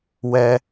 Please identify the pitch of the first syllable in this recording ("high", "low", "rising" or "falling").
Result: high